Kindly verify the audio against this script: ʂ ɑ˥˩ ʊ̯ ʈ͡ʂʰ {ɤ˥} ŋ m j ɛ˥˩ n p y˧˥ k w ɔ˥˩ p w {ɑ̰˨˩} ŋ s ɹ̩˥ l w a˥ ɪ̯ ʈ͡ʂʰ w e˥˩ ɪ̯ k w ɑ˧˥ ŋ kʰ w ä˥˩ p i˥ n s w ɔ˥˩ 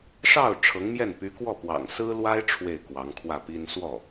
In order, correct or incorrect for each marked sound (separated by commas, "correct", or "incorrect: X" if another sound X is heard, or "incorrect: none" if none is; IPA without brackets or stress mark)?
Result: incorrect: ɤ˧˥, correct